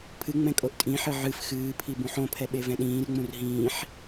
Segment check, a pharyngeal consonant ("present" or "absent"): present